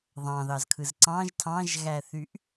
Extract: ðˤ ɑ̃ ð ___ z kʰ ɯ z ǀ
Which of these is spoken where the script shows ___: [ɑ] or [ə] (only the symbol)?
ɑ